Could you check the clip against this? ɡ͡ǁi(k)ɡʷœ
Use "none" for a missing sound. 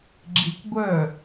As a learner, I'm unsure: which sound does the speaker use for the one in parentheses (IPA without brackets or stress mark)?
k